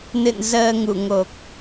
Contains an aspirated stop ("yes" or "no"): no